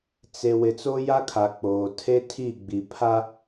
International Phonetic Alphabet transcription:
t͡s e˨ w ɪ˨ t͡s o˦ j a˦ kʰ a˨ k͡p oː˨ tʰ e˦ tʰ i˦˨ ɡ͡b i˨ pʰ a˦

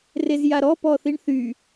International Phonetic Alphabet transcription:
r e z j a ɾ ɔ p ɔ θ i ɳ θ y

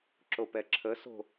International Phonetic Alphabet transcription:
ǁ o p ɛ ǁʰ ə s o̤

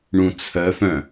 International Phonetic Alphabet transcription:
ɳ ũ t͡sʰ œ f œ̃

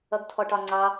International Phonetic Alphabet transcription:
ʌ ɡ tʰ ɔ ʈ ɒ ŋ͡ǀ ɑ

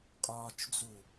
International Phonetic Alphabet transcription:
kʼ ɒː t͡ʃ d͡z u

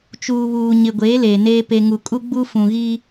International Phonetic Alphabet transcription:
t͡ʃ uː˨ β uː˨ ɲ ɪ˨ ɡʷ eː˨˦ l eː˨ n eː˦ p e˨ ŋ u˨ kʼ u˦ ɡ͡b u˦ f ũ˨ ɣ i˦

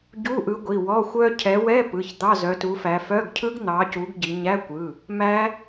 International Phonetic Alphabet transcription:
ɟ u˧˥˧ ʔ ɯ˨˦ ɡʷ i˩˧˩ w ɔ˧˥˧ xʷ œ˦˥ cʰ ɛ˨˦ w ɛ˧˥˧ p ɯ˩˧˩ ç d̪ ɑ˧˥˧ z œ˨˦ t u˨˦ f æ˨˦ f œ˧˥˧ ɡ cʰ ɯ˦˥ ɡ n̪ ɑ˨˦ c u˨˦ ɡ ɟ i˨˦ ɲ æ˧˥˧ kʷ ɯ˩˧˩ | m æ˦˥

